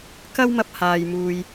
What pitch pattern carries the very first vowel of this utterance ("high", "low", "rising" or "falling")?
high